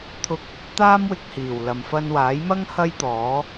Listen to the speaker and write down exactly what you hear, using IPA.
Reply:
t̪ʰ ʊ˧ k̚ | t̪ aː˥ m w ɪ˧ k̚ h iː˨˩ w l ɐ˨ m f ɐ˧ n w aː˨˥ j m ɐ˥ ŋ h ɐ˥ j t̪ ɔː˨˥

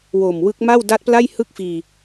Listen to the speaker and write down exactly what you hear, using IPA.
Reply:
w o˨˩ m w ɯ˦˥ k̚ m a˥˩ w d a˦˥ t̚ p l a˥˩ j h ɯ˥˩ k̚ f iː˧

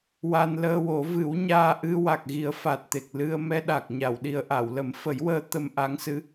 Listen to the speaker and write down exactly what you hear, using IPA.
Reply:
w a˧ n l əː˧ w o˨˩˦ v ɨ˨˩˦ w ɲ aː˧ ʔ ɨ˧ w a˨˩ k̚ ɣ i˨˩˦ ə̯ f a˨˩ t̚ t̪ e˨˩ k̚ l ɨ˧ ə̯ m ɛ˧ ɗ a˨˩ k̚ ɲ a˨˩˨ w ɗ i˨˩ ə̯ ʔ a˨˩˨ w l ə˨˩˦ m f ə˨˩˦ j w əː˧ t̪ ə˧ m ʔ a˧˥ ŋ s ɨ˧˥

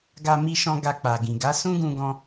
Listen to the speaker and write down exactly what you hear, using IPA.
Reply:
ɡ a˧ m i˧ ʃ ɔ̃˧ ɡ a˧ k͡p a˨ ɡ ĩ˨ ɡ a˨˦ s ũ˦ ɡ ũ˧ ɡ ɔ̃˧

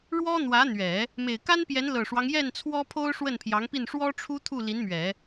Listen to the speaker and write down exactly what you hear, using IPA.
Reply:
ɻ w ɔ˥ n̪ w ä˧˥ n̪ ɥ ɛ˨˩˦ | m e˨˩ ɪ̯ k a˥ n p j ɛ˧˥ n l ɤ˨˩ ʂ w ɑ˦ ŋ j ɛ˥˩ n t͡sʰ w ɔ˥ pʰ o˥ ʊ̯ ʂ w ə˥˩ n pʰ j ɑ˧˥ ŋ p i˥˩ n ʂ w ɔ˥ ʈ͡ʂʰ u˥ t̪ʰ u˥˩ l i˧˥ n m ɥ ɛ˨˩˦

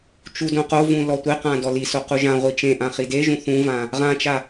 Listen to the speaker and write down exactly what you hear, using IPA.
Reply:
t͡ʃ u d õ q o v ũ l ɔ tʷ e q ã d ɔ l i s o q u ʒ ã ʁʷ i t͡ʃ ẽ ʔ ã χ i d e ʒ ũ θ ũ v ã | ʁ ã t͡ʃ a

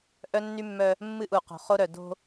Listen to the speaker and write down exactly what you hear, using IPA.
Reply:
ʔ œ˦ nː y˦ mː œ˦ | mː ɨ˦ ʔ u˨ q o̤˨ χ o˦ ɾ œ˨ d o̤˦

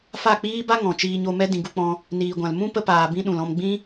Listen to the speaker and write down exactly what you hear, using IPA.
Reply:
f a˦˨ k͡p iː˦ b a˦ ŋ ɔ̃˨ t͡ʃ iː˧ ɲ o˧ m ɛ˦ d ĩ˧ ɡ u˦ k͡p ɔ̃˦ | n iː˨ ɡʷ ã˨ l m ũ˦ p ə˦ p aː˧ b ĩ˦ ɗ ũ˨ l ɔ̃˧ m ɡ͡b ĩ˦

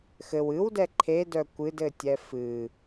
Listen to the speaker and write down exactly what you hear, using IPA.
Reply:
x ɘ w ɨ w d ɛ ǃʰ e d œ kʷ ɨ d ɘ tʲ ɛ f ɨ

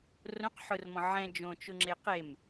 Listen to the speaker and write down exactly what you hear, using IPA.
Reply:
r õ q ħ ʊ r m ɔ̃ ʕ ɛ̃ d͡ʒ õ t͡ʃ ʊ ŋ͡ǁ e q e m

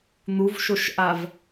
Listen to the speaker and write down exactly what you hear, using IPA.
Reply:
n̪ u v ʃ o ʃ ʔ a v

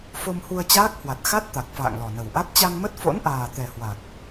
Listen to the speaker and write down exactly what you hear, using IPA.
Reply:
f o˧ m h u˧ ə̯ t͡ɕ aː˦˥ k̚ h w a˨˩ t̚ x a˦˥ t̚ t̪ a˨˩ k̚ f a̰ː˧˨ ŋ l ɔ˨˩ n ə˨˩ w ʔ a˦˥ t̚ t͡ɕ a˧ ŋ m ə˦˥ t̚ f o̰˧˥ n ʔ aː˨˩ t̪ ɛ˨˩ h w a˨˩ k̚

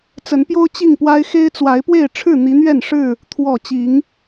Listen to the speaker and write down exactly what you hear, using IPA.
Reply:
t͡s ə˨˦ n p j o˦ ʊ̯ t͡ɕ i˥˨ ŋ p w a˦ ɪ̯ x e˦ ɪ̯ t͡s w a˨˦ ɪ̯ p w e˥˨ ɪ̯ ʈ͡ʂʰ ɻ̩˥˨ n̪ i˨˦ n̪ ɥ ɛ˥˨ n ʂ ɻ̩˥˨ | t̪ʰ w ɔ˨˩ t͡ɕ i˨˦ ŋ

